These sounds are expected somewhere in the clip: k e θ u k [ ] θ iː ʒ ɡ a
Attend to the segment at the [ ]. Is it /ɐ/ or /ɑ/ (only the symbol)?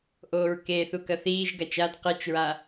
ɐ